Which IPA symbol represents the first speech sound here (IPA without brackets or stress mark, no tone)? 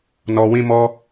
n